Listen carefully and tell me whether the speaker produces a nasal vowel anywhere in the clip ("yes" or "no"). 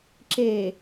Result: no